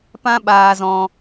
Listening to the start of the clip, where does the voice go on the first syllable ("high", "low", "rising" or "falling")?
high